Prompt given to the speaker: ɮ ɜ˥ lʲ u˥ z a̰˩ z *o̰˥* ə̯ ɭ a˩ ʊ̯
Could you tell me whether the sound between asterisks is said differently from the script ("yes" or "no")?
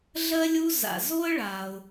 yes